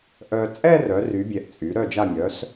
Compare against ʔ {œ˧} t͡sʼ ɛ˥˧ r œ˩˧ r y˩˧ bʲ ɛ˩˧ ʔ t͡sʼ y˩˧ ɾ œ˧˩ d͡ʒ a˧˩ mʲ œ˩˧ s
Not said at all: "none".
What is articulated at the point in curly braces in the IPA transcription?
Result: œ˧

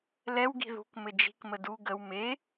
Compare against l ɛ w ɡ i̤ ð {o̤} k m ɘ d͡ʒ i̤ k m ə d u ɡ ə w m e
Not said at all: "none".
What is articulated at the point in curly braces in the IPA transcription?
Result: ṳ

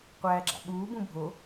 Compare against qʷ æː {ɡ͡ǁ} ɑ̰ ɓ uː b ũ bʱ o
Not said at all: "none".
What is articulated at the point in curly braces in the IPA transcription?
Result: ɡ͡ǁ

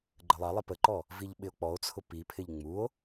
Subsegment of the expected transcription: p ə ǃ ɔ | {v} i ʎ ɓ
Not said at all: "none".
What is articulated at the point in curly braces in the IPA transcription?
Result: v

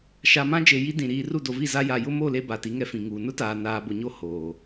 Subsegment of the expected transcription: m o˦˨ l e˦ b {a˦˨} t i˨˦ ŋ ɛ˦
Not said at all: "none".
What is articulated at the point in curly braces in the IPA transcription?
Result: a˨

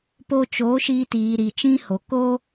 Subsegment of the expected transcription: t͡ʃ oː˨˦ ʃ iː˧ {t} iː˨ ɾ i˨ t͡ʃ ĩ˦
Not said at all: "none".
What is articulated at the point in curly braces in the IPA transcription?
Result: t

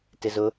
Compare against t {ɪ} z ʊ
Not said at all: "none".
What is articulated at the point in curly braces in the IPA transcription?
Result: ɪ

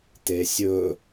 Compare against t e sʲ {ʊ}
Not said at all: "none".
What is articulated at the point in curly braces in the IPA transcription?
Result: ɵ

